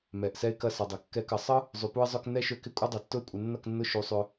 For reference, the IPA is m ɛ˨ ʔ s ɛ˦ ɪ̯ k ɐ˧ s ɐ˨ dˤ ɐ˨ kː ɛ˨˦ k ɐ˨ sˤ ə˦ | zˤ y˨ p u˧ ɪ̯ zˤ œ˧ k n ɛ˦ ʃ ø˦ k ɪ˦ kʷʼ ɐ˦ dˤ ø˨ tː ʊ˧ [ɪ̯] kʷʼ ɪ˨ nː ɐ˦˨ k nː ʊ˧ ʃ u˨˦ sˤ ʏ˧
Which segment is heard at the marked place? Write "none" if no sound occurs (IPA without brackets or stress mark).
ɪ̯